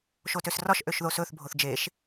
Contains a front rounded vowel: yes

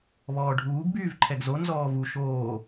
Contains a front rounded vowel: yes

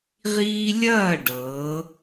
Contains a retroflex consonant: yes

